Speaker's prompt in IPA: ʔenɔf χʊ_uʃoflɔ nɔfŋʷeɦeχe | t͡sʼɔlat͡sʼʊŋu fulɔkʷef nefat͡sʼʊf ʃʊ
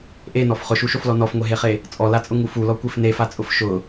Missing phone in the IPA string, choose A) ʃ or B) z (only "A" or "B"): A